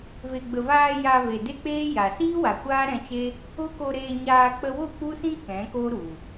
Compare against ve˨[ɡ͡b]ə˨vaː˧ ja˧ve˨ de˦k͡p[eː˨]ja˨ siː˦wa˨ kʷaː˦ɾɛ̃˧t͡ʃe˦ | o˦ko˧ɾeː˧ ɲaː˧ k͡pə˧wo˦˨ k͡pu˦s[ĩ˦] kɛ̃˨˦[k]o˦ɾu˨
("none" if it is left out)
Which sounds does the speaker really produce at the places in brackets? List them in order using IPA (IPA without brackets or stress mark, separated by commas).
ɡ͡b, eː˦, ĩ˦, k